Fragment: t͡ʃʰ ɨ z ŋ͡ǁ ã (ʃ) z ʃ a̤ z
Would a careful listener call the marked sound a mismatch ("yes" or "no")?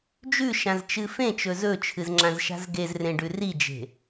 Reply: yes